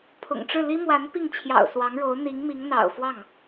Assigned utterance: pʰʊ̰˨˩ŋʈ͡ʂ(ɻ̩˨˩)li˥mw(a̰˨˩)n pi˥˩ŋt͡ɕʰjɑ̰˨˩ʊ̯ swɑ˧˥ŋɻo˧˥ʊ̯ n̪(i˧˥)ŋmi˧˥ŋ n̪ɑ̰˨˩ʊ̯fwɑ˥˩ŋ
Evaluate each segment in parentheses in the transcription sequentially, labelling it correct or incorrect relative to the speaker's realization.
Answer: incorrect: ɻ̩˥˩, incorrect: a˧˥, correct

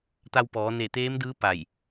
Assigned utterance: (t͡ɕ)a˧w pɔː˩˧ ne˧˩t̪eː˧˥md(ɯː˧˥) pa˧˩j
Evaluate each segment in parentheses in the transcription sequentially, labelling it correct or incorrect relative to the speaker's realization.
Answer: incorrect: t̪, correct

